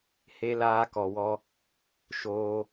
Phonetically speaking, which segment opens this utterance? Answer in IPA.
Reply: h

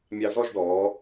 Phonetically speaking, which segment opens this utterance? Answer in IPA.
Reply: mʲ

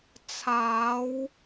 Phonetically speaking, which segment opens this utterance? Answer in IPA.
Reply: t͡sʰ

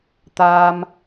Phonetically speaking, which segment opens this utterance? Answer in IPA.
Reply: t̪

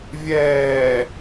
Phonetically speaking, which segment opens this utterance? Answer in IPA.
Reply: vʲ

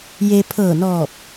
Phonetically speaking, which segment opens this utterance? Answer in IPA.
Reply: j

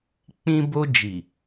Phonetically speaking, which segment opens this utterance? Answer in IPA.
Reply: k͡p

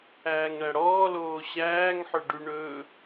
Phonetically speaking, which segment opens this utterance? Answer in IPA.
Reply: æː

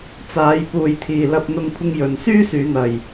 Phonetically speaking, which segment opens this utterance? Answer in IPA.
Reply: t͡s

